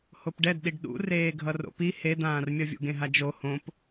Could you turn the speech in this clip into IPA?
h o p ɖ ɛ d ɗ i ɖ ɗ ṵ r eː ɡʱ ʌ r o̰ p i h e d̪ ãː r mʲ ʌ vʲ ṵ ɡ ẽ ɦ a d͡ʒ o h õ p

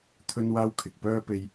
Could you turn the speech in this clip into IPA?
t̪ʰ ɵ˥ n w aː˥ w kʰ ɪ˨ k̚ p œː˥ p e˧ j

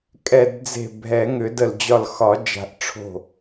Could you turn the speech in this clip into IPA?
kʼ ɛ˧˩ d d͡z e̤˧˩ bʱ ɛ˨˩˦ ŋ ʏ˨˩˦ d ə˧˩ l d͡ʑ ɒ˧˩ l x ɒ˨˩˦ d͡ʒ a̤˨˩˦ ʔ ʈ͡ʂʰ o̤˧˩

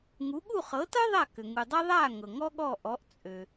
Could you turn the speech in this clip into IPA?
ŋ u˩˥ ɠ u˥˩ χ ɤ˩˥ t ɤ˥ ðˤ a˥˩ k ʏ˩ ŋ u˩ dˤ ɤ˥ ðˤ aː˥˩ ŋ ɤ˩ ŋ ɔ˥ ɠ ɔː˥˩ ʔ ɔ˩˥ ʔ t͡sʼ ø˩

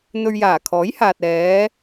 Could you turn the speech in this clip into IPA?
n̪ ɵ˧ ɥ j aː˨˩ kʰ ɔː˨˥ j h aː˨ t̚ ɛː˨˧

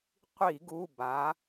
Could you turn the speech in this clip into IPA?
qʷ i˧˩˧ ɡ u˩˧˩ b a˩˧

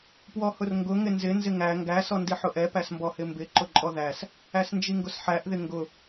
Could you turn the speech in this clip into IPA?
p w ɔ h ʊ r ŋ ɡ ʊ ŋ ɪ n z ɪ n z ɪ ŋ æ ŋ ɡ æ s ɔ n d i ħ ʊ ʔ ɛ p æ s m b ɔ h ɪ m b ɪ ǃ ʊ ǃʼ ɔ ð æ s | æ s n d͡ʒ i ŋ ɡ ʊ s ħ æ ʔ ð ɪ ŋ ɡ ʊ

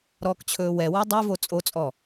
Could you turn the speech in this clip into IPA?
ɾ ɔː k t͡ɕʰ ɵː w ɛ w ɔ dˤ o v o t͡sʼ o t͡sʼ ɔ

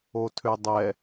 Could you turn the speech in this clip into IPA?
o tʰ ø dˤ ɛ

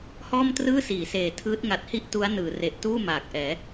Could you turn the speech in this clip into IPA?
h ɔː˥˩ m t r ɯː˥˩ s iː˩˦ s eː˨˩ tʰ ɯː˦˥ t̚ ŋ a˨˩ t̚ h i˥˩ ʔ t u˦˥ a̯ n ɯː˩˦ r e˨˩ ʔ t uː˥˩ m aː˨˩ k̚ ʔ ɛː˩˦

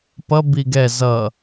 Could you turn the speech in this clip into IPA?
p ʌ b i ɡ ɛ z ʌ

